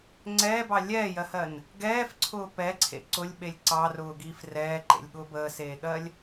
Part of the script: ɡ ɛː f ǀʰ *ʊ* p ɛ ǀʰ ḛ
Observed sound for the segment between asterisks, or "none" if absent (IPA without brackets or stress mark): ʊː